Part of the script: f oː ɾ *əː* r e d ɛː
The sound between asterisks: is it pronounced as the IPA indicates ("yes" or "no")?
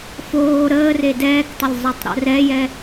yes